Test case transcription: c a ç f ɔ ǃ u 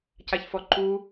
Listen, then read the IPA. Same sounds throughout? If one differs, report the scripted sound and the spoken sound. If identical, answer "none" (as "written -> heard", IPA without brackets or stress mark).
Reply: none